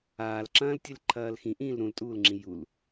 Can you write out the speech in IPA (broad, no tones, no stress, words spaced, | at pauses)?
aːlǁɐ̃ːl tʲɨlǃʰɐːlxĩʔĩːl ɾũltʼuːlŋ͡ǁĩ jul